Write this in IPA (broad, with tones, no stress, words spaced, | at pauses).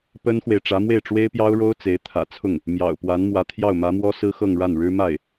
pə˥nxwe˨ɪ̯ ʈ͡ʂä˧˥mwe˥˩ɪ̯ʈ͡ʂwe˥ɪ̯pjɑ˥ʊ̯ ɻo˥ʊ̯ t͡se˧˥ɪ̯t̪ʰä̰˨˩t͡sʰʊ˥˩ŋ | mjɑ̰˨˩ʊ̯pwa˧˥n mwä˧˥t̪ʰjɑ˥˩ʊ̯mä˧˥mwɔ˥ sɹ̩˥xɤ˥˧ŋɻa˥˩nɻɻ̩˥ ma˥˩ɪ̯